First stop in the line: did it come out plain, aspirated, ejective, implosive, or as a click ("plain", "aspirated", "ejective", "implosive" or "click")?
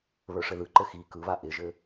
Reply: click